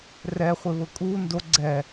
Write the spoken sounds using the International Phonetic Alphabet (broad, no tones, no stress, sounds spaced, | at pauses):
r ɛ χʷ ɪ β ʊ kʼ u n d o ɡ͡ǀ ɛ